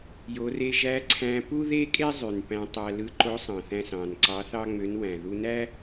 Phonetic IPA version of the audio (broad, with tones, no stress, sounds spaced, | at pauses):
j o˩˧ r e˧ ʒ æ˧˥ ǀʰ æ̃˧ p u˥ ð e˥ kʼ e˥ zˤ y˩ n p æ̃˧ tˤ æ˧ l ɯ˧ ǃ o˧˥ sˤ ɑ̃˩ θ æ̃˧ s ɑ̃˩ n ǀ ɑ˧˥ θ ɑ˥ ŋ͡m ø˧˥ n w æ̃˩ ð u˧ n æ˥